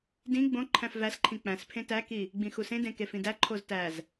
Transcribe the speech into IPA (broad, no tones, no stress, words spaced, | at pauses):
dĩ ɡ͡bõ ǃʰæ̃fvæsǃʰĩ k͡pæ̃spʰẽ tæki | ɡ͡bĩxusẽdẽ kefĩdæǃʰoz tæz